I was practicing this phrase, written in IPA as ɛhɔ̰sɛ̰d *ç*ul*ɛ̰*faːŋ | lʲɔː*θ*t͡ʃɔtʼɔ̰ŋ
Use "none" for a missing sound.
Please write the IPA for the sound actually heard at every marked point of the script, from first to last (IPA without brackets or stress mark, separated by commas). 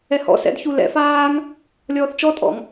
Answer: ç, ɛ̰, θ